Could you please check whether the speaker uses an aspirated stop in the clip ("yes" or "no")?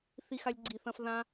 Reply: no